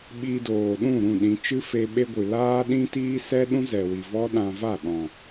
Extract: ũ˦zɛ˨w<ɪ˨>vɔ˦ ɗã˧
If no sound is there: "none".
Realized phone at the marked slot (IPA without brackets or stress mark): i˨